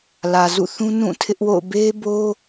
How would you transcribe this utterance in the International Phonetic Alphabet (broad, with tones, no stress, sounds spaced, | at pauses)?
l ä˨ z ṵ˦˨ θ ũ˦ n ũ˦˨ tʰ ɪ˦ ʔ w o̰˦˨ ʊ̯ b e˦ b o˦